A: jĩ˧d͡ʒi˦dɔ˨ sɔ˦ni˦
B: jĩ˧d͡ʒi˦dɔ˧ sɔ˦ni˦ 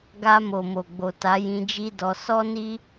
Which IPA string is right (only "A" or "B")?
B